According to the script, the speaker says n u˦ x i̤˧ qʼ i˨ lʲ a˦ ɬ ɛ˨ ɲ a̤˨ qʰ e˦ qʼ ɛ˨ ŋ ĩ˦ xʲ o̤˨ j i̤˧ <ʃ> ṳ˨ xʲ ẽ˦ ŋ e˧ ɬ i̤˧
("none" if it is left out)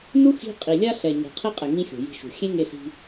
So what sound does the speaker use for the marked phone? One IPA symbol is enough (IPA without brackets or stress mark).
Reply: ʃ